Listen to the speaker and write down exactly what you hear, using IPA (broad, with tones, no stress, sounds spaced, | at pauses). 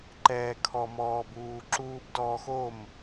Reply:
ǃ ɛː˨ kʰ ɔ˨ m ɔː˨ b uː˨ ǁ uː˨ b d ɔː˨ x o˦˨ m